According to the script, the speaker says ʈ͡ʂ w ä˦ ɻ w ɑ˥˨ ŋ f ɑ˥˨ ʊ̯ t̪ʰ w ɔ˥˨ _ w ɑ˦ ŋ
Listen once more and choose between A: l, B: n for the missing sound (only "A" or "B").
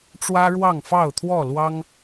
A